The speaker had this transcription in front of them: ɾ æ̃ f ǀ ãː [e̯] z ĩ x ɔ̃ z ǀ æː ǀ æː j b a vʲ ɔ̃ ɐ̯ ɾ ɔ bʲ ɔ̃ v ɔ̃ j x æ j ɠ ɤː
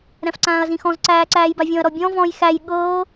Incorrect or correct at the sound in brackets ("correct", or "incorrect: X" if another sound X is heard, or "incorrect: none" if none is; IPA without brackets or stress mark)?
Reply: incorrect: ɐ̯